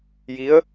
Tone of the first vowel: rising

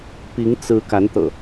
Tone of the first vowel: rising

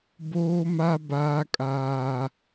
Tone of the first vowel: high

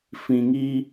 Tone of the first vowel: low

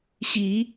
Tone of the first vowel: low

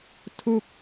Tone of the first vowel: falling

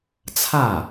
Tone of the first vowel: falling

